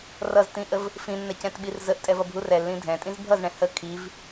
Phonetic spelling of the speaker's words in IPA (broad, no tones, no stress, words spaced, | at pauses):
rʌztĩʔəv | fĩnːɛcɛ̃tɓir zəʔtʼɛvʌbʱur ɛlːĩ dʱɛ̃tʼĩz bʱʌzɳɛ̃ hə kʰiv